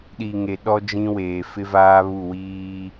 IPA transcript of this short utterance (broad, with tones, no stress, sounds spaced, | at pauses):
ɗ i˨ ŋ e˨ ɗ ɔ˦ d͡ʒ ĩ˦ w eː˨ f ɪ˦ v aː˦ β u˦˨ w iː˦